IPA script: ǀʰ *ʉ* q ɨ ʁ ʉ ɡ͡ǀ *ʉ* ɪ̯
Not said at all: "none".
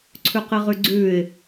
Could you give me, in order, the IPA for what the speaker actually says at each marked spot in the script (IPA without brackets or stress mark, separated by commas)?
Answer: ʉ, ʉː